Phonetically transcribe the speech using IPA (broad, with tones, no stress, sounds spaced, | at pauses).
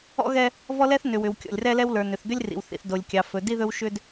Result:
ɔ̰˦ ɣ ɛ˦ | v ɔ˦ l ɛ˦ θ n ʏ˨ w ʏ˨ w kʲ ɔ̰˨ lʲ r ɛ˦ l ɛ˦ w l ə˞˨ n ʏ˨ θ d̪ ʏ˦ lʲ r ḭ˨ w θ ḭ˨ θ d o˨ lʲ kʲ ɑ˨ f ɵ˨ d i˦ ð ɵ˦ w ʃ ʏ˦ d